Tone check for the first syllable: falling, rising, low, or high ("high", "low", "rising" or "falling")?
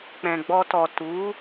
low